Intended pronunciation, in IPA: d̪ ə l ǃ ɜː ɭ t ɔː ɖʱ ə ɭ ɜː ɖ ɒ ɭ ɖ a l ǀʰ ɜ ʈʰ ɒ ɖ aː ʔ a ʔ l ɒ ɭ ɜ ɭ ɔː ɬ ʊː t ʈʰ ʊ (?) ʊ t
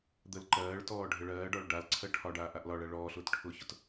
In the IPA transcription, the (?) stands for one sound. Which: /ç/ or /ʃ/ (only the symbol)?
ç